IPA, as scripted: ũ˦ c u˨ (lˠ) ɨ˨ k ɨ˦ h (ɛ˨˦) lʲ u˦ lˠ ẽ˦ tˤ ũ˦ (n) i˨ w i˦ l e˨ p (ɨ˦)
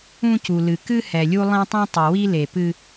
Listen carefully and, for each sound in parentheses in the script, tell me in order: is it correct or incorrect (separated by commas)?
incorrect, incorrect, incorrect, correct